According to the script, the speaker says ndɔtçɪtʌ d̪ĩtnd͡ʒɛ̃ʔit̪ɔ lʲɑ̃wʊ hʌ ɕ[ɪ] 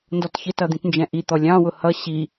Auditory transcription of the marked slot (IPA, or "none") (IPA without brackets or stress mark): i